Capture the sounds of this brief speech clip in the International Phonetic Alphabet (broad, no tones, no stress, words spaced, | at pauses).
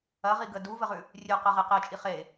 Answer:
ɐ ʁiɡə duvəʁʉ | rʲʉqə ʁeqet͡ʃʼi χe